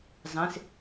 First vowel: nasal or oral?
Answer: nasal